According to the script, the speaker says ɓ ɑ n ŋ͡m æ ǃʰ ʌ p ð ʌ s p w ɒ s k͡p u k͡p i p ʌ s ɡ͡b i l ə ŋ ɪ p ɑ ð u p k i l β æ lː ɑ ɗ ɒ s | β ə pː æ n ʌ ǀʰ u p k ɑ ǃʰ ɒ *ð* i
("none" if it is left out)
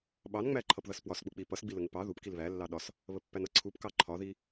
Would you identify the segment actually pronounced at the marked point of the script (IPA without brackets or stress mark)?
ð